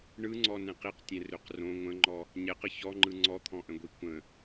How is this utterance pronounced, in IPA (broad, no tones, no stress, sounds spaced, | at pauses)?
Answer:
ɳ ɯ ŋ͡ǀ ɔ n ɛ̃ q i q tʲ ɛ̃ r ø q r õ ŋʷ ə̃ ŋ͡ǃ ɔ | ɲ ɛ q ə ç ɔ ŋ͡ǃ ɯ ŋ͡ǀ ɔ t̪ʰ ɔ̃ ʔ ə̃ ɡʷ i kʷ ə̃